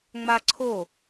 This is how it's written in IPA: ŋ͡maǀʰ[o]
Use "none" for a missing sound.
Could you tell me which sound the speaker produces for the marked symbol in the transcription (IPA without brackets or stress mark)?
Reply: o